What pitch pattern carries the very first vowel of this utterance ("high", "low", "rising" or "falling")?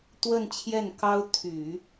falling